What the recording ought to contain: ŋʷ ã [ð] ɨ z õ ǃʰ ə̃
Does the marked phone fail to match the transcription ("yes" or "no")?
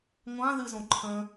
no